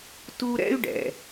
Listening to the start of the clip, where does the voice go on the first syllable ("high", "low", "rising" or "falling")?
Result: high